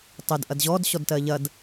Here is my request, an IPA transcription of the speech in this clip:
tˤ e d ʔ ɐ d ʑ ɔ d ɕ ɔ d t ɜ ʎ ɐ d

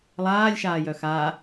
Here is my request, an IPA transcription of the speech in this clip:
lˠ aː lʲ ʃ aː j œ x a

